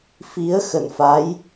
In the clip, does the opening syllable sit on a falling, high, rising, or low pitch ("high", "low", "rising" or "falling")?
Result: rising